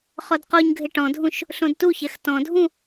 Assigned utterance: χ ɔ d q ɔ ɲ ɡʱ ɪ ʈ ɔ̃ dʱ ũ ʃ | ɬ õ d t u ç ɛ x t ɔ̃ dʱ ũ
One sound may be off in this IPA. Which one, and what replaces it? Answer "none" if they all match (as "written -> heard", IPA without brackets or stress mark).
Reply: none